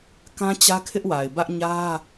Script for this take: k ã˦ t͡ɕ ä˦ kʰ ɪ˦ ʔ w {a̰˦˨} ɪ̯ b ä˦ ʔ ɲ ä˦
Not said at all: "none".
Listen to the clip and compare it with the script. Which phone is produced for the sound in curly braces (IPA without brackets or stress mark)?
a˨